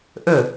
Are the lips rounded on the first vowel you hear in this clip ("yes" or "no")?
yes